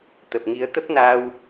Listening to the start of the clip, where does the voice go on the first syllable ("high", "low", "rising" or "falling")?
low